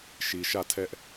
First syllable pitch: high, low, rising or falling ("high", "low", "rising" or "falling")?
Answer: low